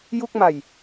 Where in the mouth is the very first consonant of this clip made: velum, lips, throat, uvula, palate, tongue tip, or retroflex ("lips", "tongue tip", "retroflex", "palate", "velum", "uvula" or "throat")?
palate